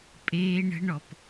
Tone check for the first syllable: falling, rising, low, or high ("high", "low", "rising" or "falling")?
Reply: high